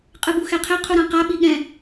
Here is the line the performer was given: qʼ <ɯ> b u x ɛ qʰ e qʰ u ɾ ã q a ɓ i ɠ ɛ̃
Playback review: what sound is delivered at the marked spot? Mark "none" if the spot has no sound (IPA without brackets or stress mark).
ɯ